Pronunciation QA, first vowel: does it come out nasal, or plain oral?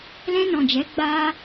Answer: nasal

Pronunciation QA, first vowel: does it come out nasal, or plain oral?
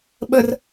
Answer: oral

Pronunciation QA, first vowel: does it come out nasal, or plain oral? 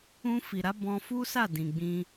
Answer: nasal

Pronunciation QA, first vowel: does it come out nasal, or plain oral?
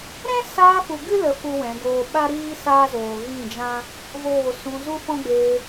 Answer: nasal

